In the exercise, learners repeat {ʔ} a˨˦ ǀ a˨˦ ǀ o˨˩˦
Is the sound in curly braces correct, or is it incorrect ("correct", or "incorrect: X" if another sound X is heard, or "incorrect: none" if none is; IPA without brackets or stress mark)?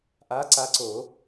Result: correct